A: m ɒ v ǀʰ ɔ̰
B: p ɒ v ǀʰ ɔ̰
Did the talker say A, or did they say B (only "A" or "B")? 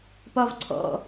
B